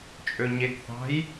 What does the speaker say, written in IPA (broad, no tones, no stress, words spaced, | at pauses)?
t͡ʃʼøɲeɡθɑ̤j